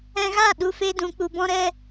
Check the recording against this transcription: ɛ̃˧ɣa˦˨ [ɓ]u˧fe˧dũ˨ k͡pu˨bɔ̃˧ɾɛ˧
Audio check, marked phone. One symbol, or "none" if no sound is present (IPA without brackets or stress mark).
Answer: ɗ